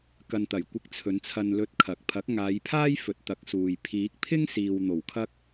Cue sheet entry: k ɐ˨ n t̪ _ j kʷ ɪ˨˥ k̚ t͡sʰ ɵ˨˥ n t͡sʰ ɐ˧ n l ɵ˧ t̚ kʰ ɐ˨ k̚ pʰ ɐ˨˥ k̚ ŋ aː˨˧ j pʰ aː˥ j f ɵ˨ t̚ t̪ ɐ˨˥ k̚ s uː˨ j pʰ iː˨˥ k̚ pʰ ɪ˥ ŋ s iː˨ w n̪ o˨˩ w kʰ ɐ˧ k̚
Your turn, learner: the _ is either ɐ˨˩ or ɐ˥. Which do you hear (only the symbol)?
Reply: ɐ˨˩